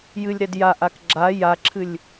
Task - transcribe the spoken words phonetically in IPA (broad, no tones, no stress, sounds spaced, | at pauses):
j ɨ lʲ ɾ ɛ d j a ʔ a k ɡ͡ǁ a j a ǁʰ ɨ lʲ